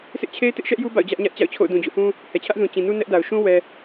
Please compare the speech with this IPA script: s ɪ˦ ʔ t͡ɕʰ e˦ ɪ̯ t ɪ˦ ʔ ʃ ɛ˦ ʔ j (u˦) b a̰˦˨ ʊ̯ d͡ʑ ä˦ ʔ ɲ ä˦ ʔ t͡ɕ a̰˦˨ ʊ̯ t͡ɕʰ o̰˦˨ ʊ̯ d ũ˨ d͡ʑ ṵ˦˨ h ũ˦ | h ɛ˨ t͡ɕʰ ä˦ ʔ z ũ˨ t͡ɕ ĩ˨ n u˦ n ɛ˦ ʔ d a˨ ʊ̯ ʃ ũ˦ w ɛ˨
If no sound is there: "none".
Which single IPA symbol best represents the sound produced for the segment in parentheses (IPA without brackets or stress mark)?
u˦